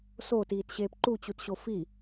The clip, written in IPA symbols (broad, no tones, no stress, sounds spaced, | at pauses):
s oː t iː t ɕ eː p ǃ u t͡ɕ u t ɕ o f i